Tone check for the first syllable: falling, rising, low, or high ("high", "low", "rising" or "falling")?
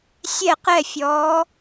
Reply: falling